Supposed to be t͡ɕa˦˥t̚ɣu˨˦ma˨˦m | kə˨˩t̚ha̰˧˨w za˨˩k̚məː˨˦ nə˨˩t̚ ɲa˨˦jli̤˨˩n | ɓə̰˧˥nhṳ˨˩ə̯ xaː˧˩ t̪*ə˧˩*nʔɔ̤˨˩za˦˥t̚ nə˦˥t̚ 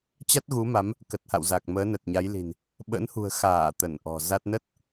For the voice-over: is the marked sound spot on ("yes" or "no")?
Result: yes